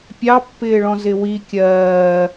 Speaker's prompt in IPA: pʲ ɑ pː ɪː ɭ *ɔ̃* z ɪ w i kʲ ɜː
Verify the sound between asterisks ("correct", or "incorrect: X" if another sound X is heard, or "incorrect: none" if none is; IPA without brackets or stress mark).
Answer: correct